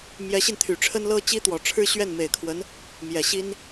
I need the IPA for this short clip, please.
mjɛ˧˥ɕi˧nt̪ʰy˨˩ ʈ͡ʂʰə˥nlɤ˥ t͡ɕi˥t̪wɔ˨˩ʈ͡ʂʰɻ̩˥ɕɥɛ˥˩n me˨˩ɪ̯kʰwə˧˥n | mjɛ˨˩ɕi˥n

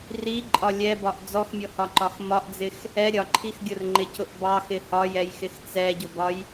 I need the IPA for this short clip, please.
riǃʼɒ lʲɛbɒʔ d͡zɔxmʲɔhɒǃɒx mɒʔd͡zɪx | ɛ ɾʲɒǃʰix ɡʲʊrŋ͡ǃɪcʊʔ bɑxɪ hɒjɛjxɪx t͡sɛɟʊbɒj

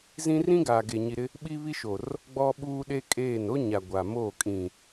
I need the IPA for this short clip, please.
zĩ˦ rĩ˦ɡaː˨ɡe˨ ɲi˨ɾɪ˦ | ɓi˦βi˦ʃo˨r | ɡ͡bɔ˦ɓuː˦ɗe˦kʼeː˦˨n o˦ɲa˨ ɡʷa˨moː˦˨ kʼĩ˨

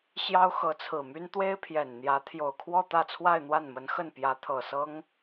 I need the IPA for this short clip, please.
ɕjɑ˥ʊ̯xɤ˧˥t͡sʰɹ̩˨˩my˥n t̪we˥ɪ̯pʰjɛ˨˩nn̪jä˧˥ t̪ʰjo˨˩ʊ̯kʰwɔ˥˧t̪ä˥˧t͡sʰwa˥˧ɪ̯ n̪wa˥˩nmə˧˥nxə˥˩n pjä˧˥t̪ʰɤ˨˩sɤ˥ŋ

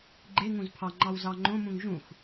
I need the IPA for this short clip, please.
ɡ͡ǃe ŋũzpʰɑŋ͡ǃɑw zɑŋ͡ǃõmũŋ ʒũx

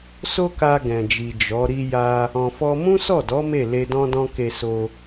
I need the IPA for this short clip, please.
so˦ka˧ ɡɛ̃˨d͡ʒi˨ d͡ʒɔ˨˦ ɾi˧ja˧ | ɔ̃˧fɔ˦ mũ˦sɔ˦˨dɔ˨˦ me˦˨ le˧dɔ̃˦dɔ̃˦ ke˧so˧

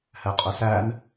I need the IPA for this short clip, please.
hɛqʼøsæn

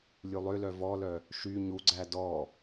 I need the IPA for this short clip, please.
lʲulˠølœ vɔlœ | ʃy ɲuɡ͡ǀæ dɔ

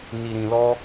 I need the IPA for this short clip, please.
ni˧ɾĩ˧lɔ˦

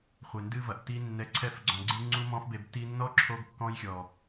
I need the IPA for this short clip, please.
χʷe˨ndɨ˧vɐ˨ʔ ti˧ nːɛ˨˦ǀʰɛ˧fɡ͡ǀɔ̃˨ɡ͡ǀɨ˧ ŋ͡ǀu˦mɔ̃˦fbe˧b ti˧nːɔ˦ǁʰo˧ɡ kːɔ̃˧jxʲɔ˨

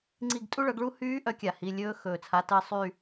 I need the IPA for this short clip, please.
ŋ͡ǀi˦˨ɡtʼu˥ɭœ˩˥ɡɭu˥ hyː˧˥ ʔœ˩˥kʲa˩ hi˩˧˩lʲɵː˧˥ xɵː˩t͡sʰa˩˧˩tɜ˦˨ sˤy˦˨

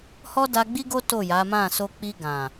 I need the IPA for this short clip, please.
hɔ˦da˧ɡ͡bi˦ɡo˦ to˦˨ja˨˦mã˦˨ so˧k͡pi˧ ɡã˨

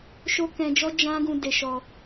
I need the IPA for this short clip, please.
ʃo˦kɛ̃˧d͡ʒɔ˦ d͡ʒã˦ɡũ˧ de˧ʃɔ˧

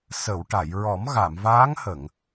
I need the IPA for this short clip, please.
sə˨˩˨wʈa˨˩˨jɹɔ˨˩˦m ɣa˨˩˨mvaː˧˥ŋhə˨˩˨ŋ

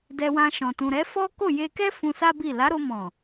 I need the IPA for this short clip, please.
dɛ˧wã˧ʃɔ̃˨ tũ˨ɾɛ˨˦fɔ˦ ko˦˨je˧kɛ˦ fũ˧sa˦bi˦˨ la˨˦ɾo˧mɔ̃˨

